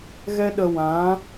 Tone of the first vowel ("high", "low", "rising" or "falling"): high